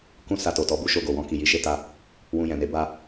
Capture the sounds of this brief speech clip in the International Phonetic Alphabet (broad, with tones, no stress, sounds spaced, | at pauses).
k ũ˦ s a˧ t o˨ t ɔ˧ b u˦ ʃ o˧ ɡ o˨ w ɔ̃˧ k i˨ j i˨˦ ʃ e˧ t a˧ | w ũ˧ j ɛ̃˨ n e˨˦ b a˧